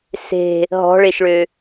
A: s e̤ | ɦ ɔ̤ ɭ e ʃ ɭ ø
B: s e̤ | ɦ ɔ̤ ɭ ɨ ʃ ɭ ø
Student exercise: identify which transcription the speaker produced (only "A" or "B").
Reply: A